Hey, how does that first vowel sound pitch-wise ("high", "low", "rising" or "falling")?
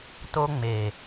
high